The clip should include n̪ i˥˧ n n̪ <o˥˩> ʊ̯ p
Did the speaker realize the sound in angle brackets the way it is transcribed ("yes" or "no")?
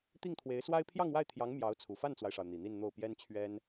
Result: yes